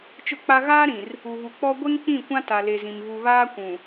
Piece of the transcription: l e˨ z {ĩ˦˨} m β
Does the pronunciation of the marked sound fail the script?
yes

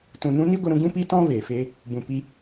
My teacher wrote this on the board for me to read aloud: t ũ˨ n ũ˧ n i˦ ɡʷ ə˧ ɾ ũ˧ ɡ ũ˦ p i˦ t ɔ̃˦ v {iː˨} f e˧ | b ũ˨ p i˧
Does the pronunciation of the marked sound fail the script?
yes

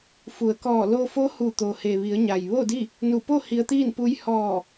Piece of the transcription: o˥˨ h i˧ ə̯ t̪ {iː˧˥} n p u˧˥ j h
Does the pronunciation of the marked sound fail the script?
yes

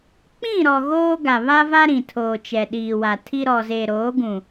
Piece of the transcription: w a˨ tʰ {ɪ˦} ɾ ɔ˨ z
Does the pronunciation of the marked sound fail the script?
yes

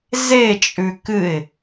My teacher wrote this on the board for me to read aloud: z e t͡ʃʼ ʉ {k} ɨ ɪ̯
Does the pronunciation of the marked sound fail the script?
no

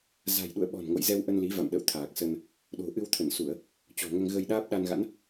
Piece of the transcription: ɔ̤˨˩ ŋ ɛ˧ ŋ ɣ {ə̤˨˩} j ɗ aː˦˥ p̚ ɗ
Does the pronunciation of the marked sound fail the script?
yes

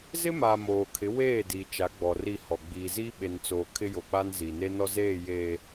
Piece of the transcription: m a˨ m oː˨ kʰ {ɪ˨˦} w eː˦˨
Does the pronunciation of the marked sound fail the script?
no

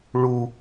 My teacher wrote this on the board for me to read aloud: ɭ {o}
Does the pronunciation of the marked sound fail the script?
yes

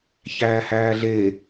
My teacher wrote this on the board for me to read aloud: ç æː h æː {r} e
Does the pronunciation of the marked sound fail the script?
yes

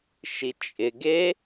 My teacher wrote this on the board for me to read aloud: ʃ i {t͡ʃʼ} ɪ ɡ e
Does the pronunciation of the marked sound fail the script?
no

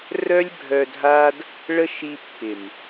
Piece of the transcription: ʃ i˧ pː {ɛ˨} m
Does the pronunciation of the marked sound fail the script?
yes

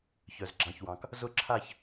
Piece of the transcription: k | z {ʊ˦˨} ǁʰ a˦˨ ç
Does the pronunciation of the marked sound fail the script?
no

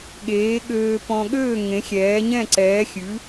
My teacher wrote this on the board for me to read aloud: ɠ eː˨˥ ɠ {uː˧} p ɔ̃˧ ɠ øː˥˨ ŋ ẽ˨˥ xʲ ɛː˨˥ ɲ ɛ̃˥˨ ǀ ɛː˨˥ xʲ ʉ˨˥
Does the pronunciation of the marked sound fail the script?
yes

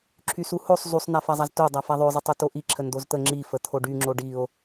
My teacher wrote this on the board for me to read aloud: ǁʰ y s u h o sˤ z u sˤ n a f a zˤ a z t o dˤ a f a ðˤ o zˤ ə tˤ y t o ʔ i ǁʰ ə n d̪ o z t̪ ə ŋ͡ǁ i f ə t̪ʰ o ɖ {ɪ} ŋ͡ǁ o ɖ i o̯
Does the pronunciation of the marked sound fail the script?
yes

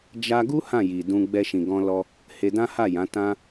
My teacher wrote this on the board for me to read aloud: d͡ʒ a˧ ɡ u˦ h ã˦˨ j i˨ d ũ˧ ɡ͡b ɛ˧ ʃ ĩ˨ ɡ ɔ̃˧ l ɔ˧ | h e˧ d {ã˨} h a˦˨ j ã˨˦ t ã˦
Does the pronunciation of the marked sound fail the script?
yes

